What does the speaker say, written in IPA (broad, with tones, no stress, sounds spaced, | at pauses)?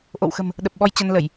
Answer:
ʔ o̰˧˨ w x ə̤˨˩ m | ɗ ə˨˩ p̚ ɓ ɔ˧ j t͡ɕ ə˧ n l ə˧˩˨ j